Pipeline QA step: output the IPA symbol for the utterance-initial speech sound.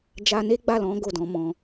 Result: d͡ʒ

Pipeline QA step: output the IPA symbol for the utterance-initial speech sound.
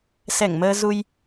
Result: s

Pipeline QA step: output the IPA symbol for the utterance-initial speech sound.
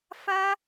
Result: f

